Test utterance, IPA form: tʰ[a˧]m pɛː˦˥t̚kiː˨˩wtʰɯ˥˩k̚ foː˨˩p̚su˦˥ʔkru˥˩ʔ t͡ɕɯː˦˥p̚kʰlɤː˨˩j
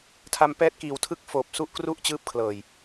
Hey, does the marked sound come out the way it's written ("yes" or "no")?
yes